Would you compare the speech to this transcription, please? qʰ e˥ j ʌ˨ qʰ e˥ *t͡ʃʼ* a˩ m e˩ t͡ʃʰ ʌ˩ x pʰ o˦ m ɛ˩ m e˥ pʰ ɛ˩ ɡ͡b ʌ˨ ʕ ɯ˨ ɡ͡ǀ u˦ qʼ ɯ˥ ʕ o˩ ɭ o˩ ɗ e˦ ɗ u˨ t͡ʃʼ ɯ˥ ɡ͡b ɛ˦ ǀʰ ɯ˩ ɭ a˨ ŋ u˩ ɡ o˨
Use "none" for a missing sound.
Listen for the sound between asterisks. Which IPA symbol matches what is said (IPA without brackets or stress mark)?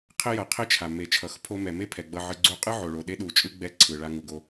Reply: t͡ʃʰ